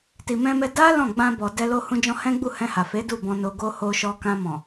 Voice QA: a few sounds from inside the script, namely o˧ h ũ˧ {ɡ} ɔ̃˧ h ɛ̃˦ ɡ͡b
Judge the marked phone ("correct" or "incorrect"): incorrect